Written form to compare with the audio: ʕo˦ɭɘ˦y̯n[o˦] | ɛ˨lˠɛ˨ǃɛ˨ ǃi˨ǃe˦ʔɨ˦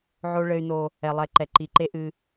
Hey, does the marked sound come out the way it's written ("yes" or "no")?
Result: yes